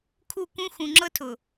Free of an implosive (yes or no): yes